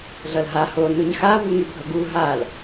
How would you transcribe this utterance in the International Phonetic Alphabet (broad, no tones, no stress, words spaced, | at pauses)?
ɮʌlɦa ho nuɲxa vuŋybʱʌɡu ɦal